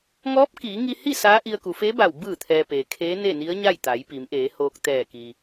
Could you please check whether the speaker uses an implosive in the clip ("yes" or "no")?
no